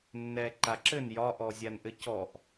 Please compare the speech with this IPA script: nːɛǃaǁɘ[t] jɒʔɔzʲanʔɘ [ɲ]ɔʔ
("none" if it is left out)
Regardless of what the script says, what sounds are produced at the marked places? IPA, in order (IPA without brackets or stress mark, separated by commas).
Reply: n, c